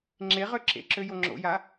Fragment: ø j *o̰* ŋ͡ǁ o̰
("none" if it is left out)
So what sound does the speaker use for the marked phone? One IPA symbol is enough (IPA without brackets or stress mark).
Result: o